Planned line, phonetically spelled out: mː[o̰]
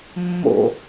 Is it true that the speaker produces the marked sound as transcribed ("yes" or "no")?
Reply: yes